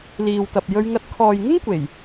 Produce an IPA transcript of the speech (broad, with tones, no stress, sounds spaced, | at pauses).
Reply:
l iː˨ w t̪ ɐ˨ p̚ j ɵ˧ ɥ ŋ ɐ˧ t̚ kʰ ɔː˨ j ŋ ɪ˥ ŋ kʷ e˨˩ j